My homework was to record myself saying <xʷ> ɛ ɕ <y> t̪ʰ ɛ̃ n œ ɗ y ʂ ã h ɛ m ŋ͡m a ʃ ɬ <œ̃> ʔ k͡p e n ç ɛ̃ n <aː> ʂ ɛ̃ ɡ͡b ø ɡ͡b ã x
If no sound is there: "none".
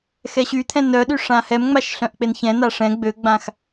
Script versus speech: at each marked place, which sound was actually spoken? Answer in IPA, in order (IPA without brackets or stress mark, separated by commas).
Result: x, y, œ̃, a